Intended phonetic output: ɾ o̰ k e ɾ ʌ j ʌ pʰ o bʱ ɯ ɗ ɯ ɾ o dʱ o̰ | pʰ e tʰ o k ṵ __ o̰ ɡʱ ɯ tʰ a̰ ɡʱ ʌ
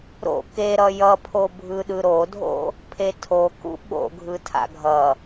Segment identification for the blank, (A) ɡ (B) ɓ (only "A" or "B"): B